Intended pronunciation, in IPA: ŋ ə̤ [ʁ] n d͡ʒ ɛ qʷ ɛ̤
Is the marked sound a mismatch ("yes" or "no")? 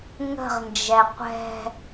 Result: no